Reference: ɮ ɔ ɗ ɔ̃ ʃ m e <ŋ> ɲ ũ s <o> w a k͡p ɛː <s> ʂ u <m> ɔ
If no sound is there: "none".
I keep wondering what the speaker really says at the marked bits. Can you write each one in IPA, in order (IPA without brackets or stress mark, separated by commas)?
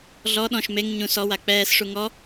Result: ŋ, ɔ, s, ŋ